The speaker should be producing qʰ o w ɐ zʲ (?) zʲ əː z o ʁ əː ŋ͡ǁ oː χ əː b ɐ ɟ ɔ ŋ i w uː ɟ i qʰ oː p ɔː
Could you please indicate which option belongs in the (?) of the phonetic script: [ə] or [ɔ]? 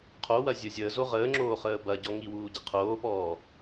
ə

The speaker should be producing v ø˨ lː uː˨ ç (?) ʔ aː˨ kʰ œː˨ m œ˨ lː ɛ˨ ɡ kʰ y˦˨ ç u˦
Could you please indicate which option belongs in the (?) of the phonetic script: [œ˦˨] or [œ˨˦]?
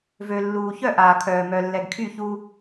œ˦˨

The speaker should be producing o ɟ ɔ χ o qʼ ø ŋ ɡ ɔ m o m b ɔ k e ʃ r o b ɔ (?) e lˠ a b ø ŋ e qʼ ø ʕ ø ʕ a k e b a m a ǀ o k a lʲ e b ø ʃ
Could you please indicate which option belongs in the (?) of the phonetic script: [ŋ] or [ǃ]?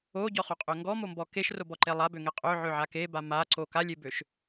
ǃ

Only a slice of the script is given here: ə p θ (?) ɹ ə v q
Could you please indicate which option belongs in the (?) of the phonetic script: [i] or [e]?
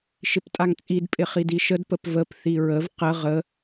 i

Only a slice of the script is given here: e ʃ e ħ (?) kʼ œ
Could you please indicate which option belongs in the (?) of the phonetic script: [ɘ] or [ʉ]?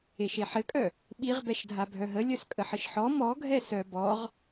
ɘ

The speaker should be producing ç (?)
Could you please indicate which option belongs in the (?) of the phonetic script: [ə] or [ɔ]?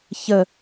ə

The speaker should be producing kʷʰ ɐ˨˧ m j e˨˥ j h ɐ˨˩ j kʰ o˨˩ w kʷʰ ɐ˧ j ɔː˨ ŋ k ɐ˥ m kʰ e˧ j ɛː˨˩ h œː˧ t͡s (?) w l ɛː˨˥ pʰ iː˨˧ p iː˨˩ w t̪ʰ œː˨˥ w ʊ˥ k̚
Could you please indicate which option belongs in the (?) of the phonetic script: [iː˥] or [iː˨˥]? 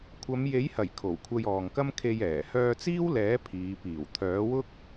iː˥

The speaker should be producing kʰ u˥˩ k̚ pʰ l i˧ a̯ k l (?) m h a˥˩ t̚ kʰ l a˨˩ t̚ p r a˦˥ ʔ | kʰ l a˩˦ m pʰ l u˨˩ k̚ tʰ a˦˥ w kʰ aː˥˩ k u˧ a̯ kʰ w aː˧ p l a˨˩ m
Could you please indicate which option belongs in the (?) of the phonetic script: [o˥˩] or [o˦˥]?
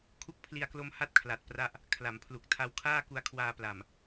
o˦˥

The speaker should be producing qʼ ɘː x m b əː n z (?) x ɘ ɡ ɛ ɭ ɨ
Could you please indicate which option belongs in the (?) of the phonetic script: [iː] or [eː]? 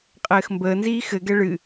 iː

